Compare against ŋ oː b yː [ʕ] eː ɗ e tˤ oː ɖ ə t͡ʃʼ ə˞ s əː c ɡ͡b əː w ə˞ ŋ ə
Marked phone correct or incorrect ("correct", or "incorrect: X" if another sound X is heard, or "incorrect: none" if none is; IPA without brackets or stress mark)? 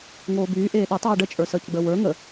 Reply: incorrect: ʔ